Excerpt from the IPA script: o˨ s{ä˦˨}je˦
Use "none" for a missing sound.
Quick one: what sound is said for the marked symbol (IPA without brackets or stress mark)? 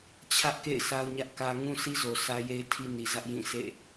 ä˦